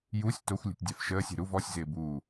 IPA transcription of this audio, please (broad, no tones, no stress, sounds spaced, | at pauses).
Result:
j u sʲ t o xʷ lʲ ṳ tʲ dʲ a f ʃ əː sʲ e̤ ɾ u v ɔ sʲ z ɪː b uː